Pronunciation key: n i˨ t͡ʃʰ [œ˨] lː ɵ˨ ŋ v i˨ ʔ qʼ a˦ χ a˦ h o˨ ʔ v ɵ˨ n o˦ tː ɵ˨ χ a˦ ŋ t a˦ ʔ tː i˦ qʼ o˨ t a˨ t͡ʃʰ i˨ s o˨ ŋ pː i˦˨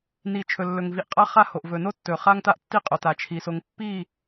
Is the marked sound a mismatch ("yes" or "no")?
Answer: yes